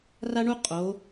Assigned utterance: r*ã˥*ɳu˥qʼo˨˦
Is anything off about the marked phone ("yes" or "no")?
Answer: yes